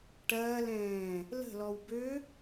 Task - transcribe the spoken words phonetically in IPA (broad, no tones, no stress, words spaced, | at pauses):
ʈɐːlɛ̃ː | lə̤lɔw bø